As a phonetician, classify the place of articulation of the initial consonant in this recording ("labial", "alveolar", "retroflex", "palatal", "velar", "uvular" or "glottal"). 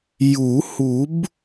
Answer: palatal